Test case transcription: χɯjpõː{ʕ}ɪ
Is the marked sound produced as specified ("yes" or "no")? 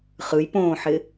no